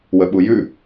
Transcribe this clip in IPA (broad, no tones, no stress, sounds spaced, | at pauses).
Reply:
w ə ɓ u j ʉ